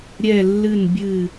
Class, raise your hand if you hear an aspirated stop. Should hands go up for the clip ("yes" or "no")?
no